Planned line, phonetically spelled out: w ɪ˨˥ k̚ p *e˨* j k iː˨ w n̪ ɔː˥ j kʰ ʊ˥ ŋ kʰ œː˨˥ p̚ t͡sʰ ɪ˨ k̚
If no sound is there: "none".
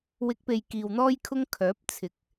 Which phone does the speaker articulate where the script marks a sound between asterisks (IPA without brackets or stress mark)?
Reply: e˨